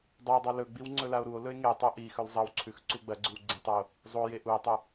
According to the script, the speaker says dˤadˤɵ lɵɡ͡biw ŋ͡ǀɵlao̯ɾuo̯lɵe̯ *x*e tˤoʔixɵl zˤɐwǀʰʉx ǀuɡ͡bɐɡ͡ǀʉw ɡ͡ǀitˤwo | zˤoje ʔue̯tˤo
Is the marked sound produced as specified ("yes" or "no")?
no